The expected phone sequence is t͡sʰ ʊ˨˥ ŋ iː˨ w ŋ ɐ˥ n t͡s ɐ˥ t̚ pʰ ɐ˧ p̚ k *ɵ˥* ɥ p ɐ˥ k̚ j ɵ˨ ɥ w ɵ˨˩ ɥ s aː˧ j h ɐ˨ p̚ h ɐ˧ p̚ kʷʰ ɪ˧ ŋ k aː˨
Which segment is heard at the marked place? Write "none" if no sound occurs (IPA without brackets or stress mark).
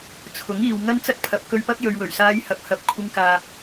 ɵ˥